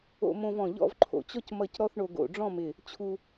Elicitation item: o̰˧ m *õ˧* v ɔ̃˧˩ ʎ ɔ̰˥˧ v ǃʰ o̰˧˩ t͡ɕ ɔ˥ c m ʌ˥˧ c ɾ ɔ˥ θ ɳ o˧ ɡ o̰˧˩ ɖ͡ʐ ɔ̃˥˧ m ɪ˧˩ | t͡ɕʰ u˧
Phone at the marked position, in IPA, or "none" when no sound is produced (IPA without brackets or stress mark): õ˧